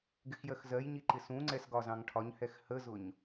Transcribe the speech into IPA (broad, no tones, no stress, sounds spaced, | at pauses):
ɡ ɪ x j ɜ x z ɜ j ɲ i ǃ ɪ s ũ ŋ͡ǀ ɛ s ɡ ɒ z ɑ̃ ŋ ʈʰ ɒ ɲ h ɛ x h ə z ʊ ɲ